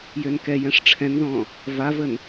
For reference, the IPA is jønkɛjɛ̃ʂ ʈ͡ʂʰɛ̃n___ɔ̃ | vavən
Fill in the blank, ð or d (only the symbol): ð